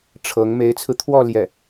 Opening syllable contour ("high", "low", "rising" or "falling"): rising